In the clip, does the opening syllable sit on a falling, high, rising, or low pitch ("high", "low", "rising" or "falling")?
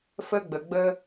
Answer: high